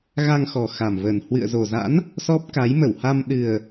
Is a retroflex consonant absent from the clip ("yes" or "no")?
yes